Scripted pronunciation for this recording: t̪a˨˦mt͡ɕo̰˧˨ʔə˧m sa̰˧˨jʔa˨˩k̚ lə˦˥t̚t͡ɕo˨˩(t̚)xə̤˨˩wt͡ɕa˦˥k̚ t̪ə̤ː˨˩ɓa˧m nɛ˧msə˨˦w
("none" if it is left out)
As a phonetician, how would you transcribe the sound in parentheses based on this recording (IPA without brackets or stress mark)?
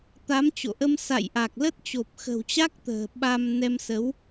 p̚